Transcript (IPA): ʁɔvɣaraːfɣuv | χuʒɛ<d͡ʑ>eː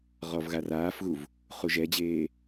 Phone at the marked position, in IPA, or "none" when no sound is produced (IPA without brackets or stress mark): d͡ʑ